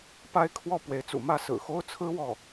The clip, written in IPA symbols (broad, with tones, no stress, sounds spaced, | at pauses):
p a˥ ɪ̯ kʰ w ɔ˥˩ p w e˧˥ ɪ̯ t͡s ṵ˨˩ m ä˥˩ s ɹ̩˨˩ x o˥ ʊ̯ t͡sʰ ɹ̩˥ w ɔ˥˩